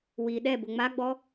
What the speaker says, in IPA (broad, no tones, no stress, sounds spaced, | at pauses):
w i ɗ ɛ b ʊ ŋ͡m a ɡ͡b ɔ